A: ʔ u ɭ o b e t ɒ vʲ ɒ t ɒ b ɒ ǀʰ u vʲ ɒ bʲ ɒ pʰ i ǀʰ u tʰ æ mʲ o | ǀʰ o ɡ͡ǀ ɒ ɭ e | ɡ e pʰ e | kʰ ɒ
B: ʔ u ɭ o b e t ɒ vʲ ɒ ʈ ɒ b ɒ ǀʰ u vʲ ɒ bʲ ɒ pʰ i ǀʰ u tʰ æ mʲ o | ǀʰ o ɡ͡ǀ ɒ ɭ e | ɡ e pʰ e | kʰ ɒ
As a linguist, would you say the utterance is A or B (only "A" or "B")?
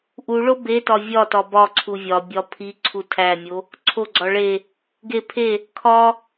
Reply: A